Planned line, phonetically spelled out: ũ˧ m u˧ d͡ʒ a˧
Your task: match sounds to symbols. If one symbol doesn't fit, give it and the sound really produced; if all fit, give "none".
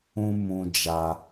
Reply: u˧ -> ũ˧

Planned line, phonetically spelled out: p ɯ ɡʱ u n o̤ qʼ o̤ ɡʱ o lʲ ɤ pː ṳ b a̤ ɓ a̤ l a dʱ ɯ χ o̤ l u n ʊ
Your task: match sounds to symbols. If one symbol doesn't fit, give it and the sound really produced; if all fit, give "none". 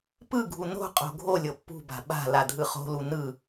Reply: ʊ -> ɯ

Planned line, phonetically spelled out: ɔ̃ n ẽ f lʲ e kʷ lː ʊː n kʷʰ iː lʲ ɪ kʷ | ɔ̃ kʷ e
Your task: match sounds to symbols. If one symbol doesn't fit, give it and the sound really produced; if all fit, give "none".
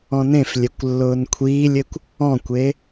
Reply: none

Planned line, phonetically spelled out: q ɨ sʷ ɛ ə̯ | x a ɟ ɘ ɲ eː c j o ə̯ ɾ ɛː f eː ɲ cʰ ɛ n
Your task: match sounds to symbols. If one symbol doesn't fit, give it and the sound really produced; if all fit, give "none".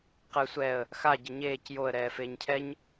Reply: n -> ɲ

